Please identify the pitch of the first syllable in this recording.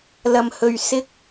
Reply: low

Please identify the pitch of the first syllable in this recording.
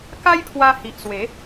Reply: high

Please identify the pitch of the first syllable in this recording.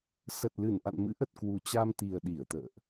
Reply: low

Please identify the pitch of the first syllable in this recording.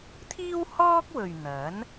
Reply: high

